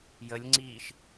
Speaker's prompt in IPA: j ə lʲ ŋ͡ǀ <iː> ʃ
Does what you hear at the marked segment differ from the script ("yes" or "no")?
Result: no